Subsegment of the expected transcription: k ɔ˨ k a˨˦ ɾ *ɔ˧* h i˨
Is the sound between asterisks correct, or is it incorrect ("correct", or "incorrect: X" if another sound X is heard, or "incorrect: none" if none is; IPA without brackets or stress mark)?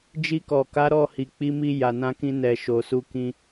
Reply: incorrect: ɔ˦˨